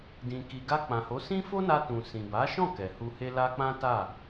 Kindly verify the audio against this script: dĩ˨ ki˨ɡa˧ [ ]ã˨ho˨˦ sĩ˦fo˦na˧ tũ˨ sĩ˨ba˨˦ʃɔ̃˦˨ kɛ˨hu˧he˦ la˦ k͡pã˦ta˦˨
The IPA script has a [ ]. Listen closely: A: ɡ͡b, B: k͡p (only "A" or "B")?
B